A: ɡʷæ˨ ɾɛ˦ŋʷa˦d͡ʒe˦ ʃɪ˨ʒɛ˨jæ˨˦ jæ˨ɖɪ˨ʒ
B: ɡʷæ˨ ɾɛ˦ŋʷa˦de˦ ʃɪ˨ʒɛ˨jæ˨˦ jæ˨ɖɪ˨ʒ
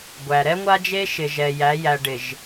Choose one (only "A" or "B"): A